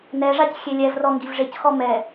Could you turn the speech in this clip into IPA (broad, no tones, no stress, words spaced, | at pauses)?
nɛʐac xʲelʲɛvrɔ ŋɡivʐecxɔ mɛ